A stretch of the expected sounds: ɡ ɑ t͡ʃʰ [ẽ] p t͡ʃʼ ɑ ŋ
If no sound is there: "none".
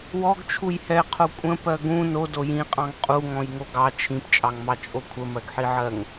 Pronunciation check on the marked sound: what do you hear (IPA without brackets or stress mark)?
ĩ